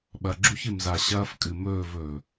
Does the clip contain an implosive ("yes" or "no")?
yes